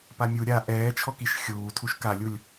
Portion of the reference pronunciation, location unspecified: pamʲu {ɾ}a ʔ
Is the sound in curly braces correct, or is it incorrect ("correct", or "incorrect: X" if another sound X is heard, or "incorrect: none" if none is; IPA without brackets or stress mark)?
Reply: incorrect: ɾʲ